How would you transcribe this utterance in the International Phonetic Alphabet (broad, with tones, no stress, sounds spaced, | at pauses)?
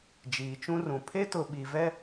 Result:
d͡ʒ iː˨ t͡ʃ ũ˦ r ũ˨ pʰ e˦ t ʊ˨ ɓ i˨ v ɛ˦